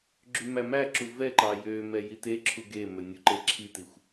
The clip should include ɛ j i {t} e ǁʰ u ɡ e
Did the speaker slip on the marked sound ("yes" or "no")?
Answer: no